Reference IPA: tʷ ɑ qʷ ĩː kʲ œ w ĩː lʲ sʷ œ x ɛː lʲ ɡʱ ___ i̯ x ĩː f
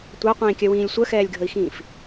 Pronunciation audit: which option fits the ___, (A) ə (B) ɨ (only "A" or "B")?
A